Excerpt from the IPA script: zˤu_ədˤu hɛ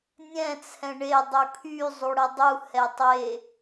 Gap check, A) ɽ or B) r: A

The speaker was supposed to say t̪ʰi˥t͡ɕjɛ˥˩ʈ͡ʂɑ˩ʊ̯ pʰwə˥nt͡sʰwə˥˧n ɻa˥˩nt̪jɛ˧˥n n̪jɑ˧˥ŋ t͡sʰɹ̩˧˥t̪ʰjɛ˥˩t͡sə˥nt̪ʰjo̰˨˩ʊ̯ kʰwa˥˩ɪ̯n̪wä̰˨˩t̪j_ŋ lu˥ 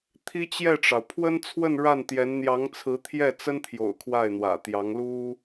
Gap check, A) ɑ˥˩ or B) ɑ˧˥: B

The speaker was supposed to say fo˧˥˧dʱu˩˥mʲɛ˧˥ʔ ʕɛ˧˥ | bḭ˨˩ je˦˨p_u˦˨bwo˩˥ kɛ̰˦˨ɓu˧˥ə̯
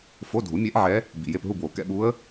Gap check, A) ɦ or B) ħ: A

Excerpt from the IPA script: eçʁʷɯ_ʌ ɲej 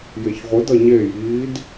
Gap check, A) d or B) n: A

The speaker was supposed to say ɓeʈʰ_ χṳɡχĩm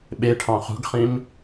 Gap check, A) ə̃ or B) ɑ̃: B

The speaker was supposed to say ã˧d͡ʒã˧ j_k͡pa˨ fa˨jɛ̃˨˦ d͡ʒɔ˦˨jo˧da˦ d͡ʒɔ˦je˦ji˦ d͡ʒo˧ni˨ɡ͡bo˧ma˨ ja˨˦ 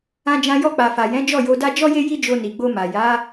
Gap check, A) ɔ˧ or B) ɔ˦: A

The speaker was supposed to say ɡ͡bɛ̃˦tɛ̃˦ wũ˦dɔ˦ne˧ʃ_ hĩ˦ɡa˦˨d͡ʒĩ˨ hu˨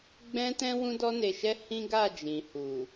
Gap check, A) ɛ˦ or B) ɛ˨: A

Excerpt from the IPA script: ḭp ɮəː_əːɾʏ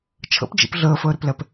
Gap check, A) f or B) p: A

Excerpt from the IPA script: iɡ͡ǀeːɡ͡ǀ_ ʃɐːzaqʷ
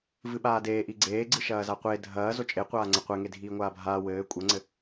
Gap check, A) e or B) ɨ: B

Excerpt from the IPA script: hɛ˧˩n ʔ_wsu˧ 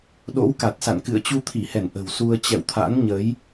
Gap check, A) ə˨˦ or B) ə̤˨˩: B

